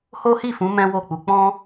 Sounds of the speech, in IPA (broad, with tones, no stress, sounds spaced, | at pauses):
h o˦ h i˦˨ f ũ˨˦ m ɛ̃˦ w o˦˨ k͡p u˧ k͡p ɔ̃˦